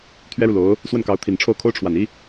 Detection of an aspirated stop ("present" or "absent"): present